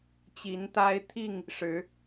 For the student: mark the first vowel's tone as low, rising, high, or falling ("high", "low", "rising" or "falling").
rising